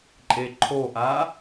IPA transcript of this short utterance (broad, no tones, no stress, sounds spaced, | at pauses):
ǃʼ e ǃʰ o ʔ a